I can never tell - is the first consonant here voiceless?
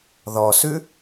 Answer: no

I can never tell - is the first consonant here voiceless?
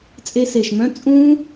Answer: yes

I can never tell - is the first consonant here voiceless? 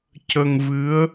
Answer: yes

